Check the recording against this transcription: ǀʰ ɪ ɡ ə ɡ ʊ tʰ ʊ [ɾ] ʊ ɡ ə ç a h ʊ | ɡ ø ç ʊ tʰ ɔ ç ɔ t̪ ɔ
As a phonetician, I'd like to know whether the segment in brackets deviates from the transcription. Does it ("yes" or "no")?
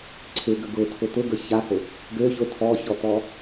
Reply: yes